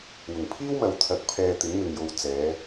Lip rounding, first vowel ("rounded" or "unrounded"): rounded